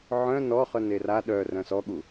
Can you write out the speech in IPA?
ʕ œ̃ n ɔ χ œ n e r a ɗ œ r œ̃ s ɔ ɠ u

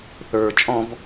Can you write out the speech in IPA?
θ ə˞ t͡ʃʼ ɔ̃ v

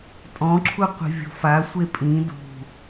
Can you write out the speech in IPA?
tʼ ɔ̃ ǁʰ u qʷ i̤ vʲ o̤ f a sʷ e pʼ ĩ d ṳ

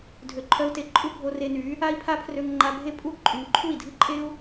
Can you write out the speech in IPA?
dʱ ø˧ ǃʰ œ˦ u̯ t e˧ ǃʼ u˦ bʱ o˧ r e˧ n y˨˦ | a˦ i̯ pʰ a˦ pʰ r ø˧ ŋ ŋ͡ǃ a˧ bʱ e˦ pʼ u˦ ǃʼ y˨ ŋ ǃʰ u˦˨ i̯ dʱ ɨ˦ ǃʼ e˦ u̯

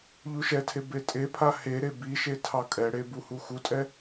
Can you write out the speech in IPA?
ʎ u ʃ ɛ tʰ e b e tʼ e pʰ a h e ɾ e b i ʃ e tʰ ɑ kʼ ɛ ɽ e b u h u x u tʼ ɛ

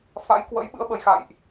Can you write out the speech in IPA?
f a̰˧˥ j k w ə̰˧˥ j ɓ ɨ̰˧˥ ə̯ ɓ ə˨˩ j x a̰˧˨ j ʔ

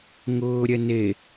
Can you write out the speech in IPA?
ŋ ʊː ɾʲ ɛ n e

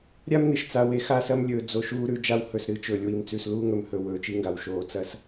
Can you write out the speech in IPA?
ɾʲ a˦ m n ɨ˨ ʃ t͡s a˨ w e˨ x a˦˨ s ɐ˦ m lʲ ɵː˨ d͡z o˨ ʃ uː˦ ɾ ʉ˨˦ d͡ʒ a˦ w h ɵ˨ s ɾ ɨ˨ t͡ʃ ɵː˨ lʲ w i˨ m t͡s ʉ˨ s l uː˦ ŋ ɵ˨ m h ɵ˨ w ɵː˨ t͡ʃ i˦ ŋ ɡ a˨ w ʃ oː˨˦ t͡s ɐ˦ s

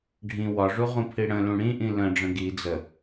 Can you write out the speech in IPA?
ɖʱ ĩ w ɒ ʐ u ʁ ũ pʰ i ɽ ə̃ l ũ ɽ ĩ ʔ ĩ l ə̃ ɖ͡ʐ ə̃ ɡ i d͡z ə

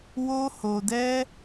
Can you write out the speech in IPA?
w o˦ h o˧ d ɛ˦

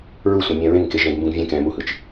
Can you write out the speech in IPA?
ɹ u sʷ ã mʲ ɛ̃ ɹ ẽ ŋ k e ʒ ɛ̃ ɡ m b ũ ɡ vʲ ẽ k ɛ̃ m u h ɯ t͡ʃ

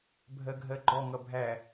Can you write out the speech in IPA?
bʱ ɜ ɡʱ ɜ ɡ͡ǃ ɔ ŋ ʌ bʱ æ

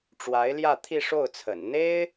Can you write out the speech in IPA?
ʈ͡ʂ w a˧˥ ɪ̯ l j ä˥˧ t̪ʰ i˥˧ ʂ o˥˩ ʊ̯ t͡sʰ ə̰˨˩ n n̪ e˥ ɪ̯

